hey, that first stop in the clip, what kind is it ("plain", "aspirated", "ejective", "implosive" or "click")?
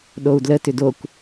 implosive